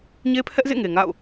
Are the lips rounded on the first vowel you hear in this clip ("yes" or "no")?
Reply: no